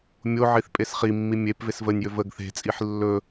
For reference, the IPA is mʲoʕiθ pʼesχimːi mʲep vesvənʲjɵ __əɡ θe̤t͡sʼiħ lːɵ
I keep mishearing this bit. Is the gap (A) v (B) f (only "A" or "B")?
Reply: A